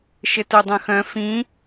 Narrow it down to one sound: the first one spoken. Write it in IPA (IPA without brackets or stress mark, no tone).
ʃ